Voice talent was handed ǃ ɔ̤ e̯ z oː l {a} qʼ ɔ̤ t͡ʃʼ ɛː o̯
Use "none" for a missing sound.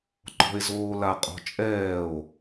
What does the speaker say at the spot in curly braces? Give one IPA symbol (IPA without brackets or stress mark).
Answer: a